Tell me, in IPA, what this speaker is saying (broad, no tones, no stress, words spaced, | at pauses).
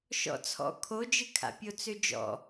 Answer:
ʃɔ̰t͡sʰɔ̰ kʰod͡ʒɨkʰa̰pʲo t͡sød͡ʒɔ̰